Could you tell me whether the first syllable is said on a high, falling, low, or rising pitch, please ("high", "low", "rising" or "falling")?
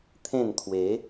falling